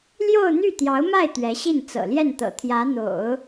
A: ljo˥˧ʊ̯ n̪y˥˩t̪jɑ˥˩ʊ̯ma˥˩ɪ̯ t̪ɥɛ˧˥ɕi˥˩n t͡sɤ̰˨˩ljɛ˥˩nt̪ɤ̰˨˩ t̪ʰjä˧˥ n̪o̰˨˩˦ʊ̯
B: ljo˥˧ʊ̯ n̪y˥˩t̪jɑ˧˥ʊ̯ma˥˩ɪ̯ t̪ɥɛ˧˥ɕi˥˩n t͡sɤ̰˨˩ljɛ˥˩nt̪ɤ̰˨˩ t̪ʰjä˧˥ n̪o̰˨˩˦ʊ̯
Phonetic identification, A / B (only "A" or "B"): B